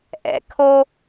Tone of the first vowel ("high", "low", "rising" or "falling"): low